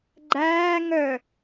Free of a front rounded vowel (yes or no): no